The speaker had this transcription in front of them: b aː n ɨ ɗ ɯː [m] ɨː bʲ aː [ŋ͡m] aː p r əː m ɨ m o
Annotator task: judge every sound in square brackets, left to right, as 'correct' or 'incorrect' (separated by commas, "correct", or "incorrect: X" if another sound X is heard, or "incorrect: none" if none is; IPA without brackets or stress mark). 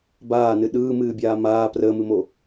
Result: correct, incorrect: m